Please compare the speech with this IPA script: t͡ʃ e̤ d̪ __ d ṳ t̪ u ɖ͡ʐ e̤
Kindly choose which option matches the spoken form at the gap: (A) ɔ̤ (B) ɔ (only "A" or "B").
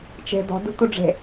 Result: A